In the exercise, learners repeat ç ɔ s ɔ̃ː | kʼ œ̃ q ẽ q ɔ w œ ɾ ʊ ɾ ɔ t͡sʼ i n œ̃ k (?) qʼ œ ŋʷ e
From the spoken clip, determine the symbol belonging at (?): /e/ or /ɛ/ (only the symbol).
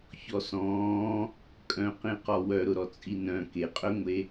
e